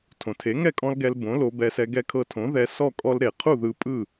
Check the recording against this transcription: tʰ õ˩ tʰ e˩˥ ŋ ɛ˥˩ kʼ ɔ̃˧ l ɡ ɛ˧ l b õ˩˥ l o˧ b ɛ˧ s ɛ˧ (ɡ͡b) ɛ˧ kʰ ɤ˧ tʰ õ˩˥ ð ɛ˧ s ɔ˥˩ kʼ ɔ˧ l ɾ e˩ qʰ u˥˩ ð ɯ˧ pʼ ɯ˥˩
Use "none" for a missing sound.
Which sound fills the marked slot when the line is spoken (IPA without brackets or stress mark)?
ɡ